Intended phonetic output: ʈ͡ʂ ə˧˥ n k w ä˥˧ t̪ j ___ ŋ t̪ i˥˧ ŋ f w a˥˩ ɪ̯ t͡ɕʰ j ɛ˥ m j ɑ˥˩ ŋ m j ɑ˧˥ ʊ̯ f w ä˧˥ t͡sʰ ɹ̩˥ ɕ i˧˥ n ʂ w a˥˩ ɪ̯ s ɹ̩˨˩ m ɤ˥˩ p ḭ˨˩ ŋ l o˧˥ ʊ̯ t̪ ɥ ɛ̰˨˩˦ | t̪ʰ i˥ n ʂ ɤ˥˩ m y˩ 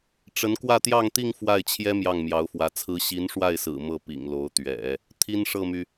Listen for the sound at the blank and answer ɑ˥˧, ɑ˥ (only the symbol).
ɑ˥˧